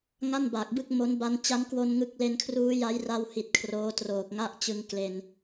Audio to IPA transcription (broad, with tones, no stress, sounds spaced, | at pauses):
ŋ a˥˩ n b a˨˩ k̚ b ɯ˥˩ k̚ m o˦˥ n b a˦˥ n t͡ɕ a˦˥ n k w o˧ n ŋ ɯ˦˥ k̚ l e˧ n kʰ r uː˦˥ j a˦˥ j r a˧ w h i˨˩ t̚ kʰ r oː˦˥ t r oː˨˩ k̚ ŋ a˥˩ ʔ t͡ɕ ɯ˧ ŋ k l e˧ n